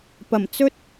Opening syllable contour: low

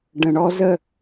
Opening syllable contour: low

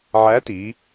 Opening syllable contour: rising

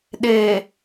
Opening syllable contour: low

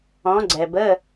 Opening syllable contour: rising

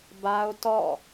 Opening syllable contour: high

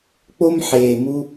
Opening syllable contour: high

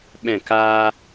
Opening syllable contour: falling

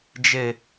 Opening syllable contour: low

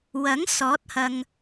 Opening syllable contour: rising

